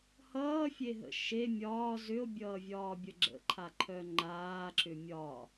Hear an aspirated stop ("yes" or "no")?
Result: yes